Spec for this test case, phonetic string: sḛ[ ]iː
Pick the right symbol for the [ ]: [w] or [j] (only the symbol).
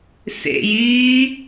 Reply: j